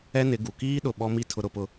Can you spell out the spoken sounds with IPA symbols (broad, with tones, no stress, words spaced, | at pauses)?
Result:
ɛ˦nɪ˨˦ɡu˨ kiː˦ɗʊ˨ ɓɔ˦ mi˦ tʰʊ˦ɾʊ˦pʊ˦